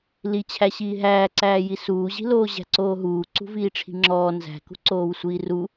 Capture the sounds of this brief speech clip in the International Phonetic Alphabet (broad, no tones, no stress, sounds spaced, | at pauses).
l i t͡ɕʰ æ ɕ iː ɦ æː ǀ æː j i s uː ʑ i̤ l oː ʑ æ̤ ǀ oː ɦ uː ǀ ṳ v iː ʈ͡ʂʰ i̤ ŋ͡ǁ ɔː n z æ̤ k ṳ ǀ oː w sʷ iː r u